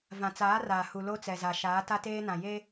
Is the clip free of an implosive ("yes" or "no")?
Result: yes